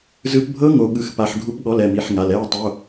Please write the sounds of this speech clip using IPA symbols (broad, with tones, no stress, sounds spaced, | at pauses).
z ɯ˦˥ p bʱ ɤ˦˥ ŋ o˦˥ ɠ ɯ˦˥ x p a˦˥ ħ ɡʱ u˦˥ p ɠ ɔ˧˥˧ l ɛ˧˥˧ m i˧˥˧ ħ ŋ a˧˥˧ l ɛ˧˥˧ ʊ̯ tˤ o˧˥˧